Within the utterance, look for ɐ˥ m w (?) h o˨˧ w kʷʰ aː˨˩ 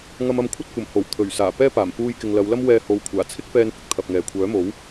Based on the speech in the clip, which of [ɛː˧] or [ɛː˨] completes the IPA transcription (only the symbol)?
ɛː˧